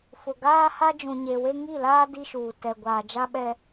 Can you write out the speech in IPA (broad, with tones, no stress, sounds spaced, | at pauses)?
f ʊ˨ ɡ aː˦ h a˦ d͡ʒ ũ˨ ɲ e˨ w e˦ ŋ i˦˨ l aː˦ d i˦ ʃ uː˨ t ɛ˨ ɡʷ aː˨ d͡ʒ a˦ ɓ ɛ˦